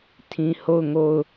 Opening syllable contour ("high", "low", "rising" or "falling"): low